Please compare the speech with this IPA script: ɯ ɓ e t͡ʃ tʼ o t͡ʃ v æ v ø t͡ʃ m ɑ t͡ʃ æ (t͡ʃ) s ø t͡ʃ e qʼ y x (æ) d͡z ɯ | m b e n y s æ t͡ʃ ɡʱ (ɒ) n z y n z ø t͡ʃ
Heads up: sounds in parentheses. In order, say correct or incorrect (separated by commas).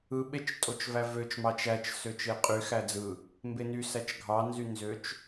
correct, correct, incorrect